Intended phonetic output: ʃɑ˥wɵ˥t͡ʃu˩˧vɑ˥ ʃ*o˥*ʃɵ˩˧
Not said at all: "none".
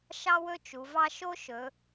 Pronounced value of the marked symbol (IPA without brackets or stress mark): o˥